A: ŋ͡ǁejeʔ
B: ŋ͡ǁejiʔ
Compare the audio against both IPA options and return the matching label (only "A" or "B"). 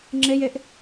A